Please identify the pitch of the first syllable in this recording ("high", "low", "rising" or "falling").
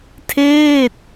falling